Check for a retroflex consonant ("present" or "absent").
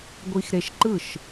absent